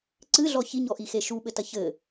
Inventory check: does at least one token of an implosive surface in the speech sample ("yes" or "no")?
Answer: yes